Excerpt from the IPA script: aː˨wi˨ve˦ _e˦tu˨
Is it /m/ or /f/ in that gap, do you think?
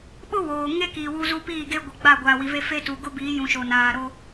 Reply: f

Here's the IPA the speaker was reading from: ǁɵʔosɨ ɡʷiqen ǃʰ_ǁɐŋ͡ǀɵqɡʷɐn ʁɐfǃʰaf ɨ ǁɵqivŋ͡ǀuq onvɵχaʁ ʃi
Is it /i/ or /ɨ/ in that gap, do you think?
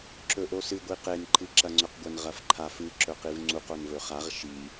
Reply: ɨ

